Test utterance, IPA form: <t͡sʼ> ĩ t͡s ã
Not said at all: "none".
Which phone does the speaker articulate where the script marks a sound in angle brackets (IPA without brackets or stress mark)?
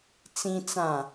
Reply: t͡s